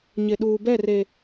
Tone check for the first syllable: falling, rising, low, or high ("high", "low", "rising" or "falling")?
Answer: low